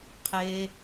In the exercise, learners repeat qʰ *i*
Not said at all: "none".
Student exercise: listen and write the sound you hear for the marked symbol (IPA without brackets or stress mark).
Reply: e